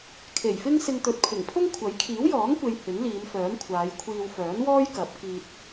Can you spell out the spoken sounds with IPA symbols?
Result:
kʰ e˨˩ j f ɪ˥ ŋ s ɪ˧ ŋ t̪ ɵ˨ t̚ pʰ ɪ˨˩ ŋ pʰ ʊ˥ ŋ kʷʰ ɐ˨˥ j kʰ iː˨˥ w j ɔː˨˥ ŋ kʷ e˨ j h ɪ˨˥ ŋ l iː˨˧ m f œː˨˥ m kʷʰ aː˨˧ j kʷʰ iː˧ w f œː˨˥ n w ɔː˥ j k ɐ˨˥ p̚ k iː˧ t̚

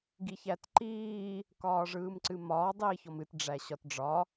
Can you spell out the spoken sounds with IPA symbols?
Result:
ɡ i ç æ t ǃ iː | k ɒː ʐ ɯː m ǀ ɨ m ɒː dˤ iː ç ɔ m ɨ t ɖ͡ʐ æ ɕ ɒ t ɖ͡ʐ ɒ

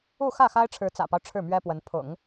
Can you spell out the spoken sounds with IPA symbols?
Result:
u˥˧ x ä˥˩ x a˥ ɪ̯ ʈ͡ʂʰ ɻ̩˧˥ t͡s ä̰˨˩ p ɑ˦ ʊ̯ ʈ͡ʂʰ ɻ̩˥˩ m ɥ ɛ˥ p w ə˧˥ n pʰ ʊ̰˨˩˦ ŋ

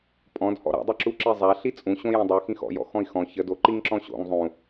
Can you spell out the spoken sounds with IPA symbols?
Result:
pʼ ɔ̃ d h ɔ̰ ɾ a̰ dˤ ɵ ǁ u ǁ i zˤ a ɬ i t͡sʼ ũ ɕ õ j ĩ dˤ u x ĩ x ɔ̰ j ɔ̰ x ɔ̃ i̯ x ɔ̃ ç ə d o ǃ i ŋ ǁ ɔ̃ ɕ o̰ ŋ zˤ ũ

